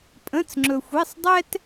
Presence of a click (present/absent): present